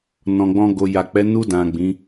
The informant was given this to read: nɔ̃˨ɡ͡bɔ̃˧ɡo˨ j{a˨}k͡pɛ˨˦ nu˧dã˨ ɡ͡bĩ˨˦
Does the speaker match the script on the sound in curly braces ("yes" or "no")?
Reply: yes